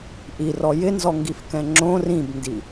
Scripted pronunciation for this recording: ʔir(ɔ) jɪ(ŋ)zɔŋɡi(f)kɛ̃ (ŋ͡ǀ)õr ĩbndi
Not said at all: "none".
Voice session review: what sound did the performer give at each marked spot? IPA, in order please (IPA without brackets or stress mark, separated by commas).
ɔ, n, f, ŋ͡ǁ